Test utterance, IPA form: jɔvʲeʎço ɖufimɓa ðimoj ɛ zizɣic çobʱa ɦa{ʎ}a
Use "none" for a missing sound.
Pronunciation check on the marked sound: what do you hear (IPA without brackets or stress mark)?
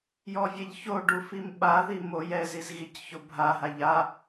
ʎ